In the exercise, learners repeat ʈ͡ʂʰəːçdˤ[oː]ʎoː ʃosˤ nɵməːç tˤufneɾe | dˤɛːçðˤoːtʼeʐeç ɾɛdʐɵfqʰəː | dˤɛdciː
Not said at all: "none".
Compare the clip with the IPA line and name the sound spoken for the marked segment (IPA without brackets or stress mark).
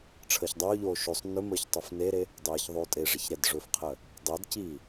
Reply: ɵː